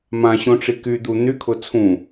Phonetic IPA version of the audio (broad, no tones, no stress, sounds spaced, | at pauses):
m ã ɕ õ ʈ͡ʂ i k y d̪ u n̪ y kʰ ʊ t͡sʰ ũ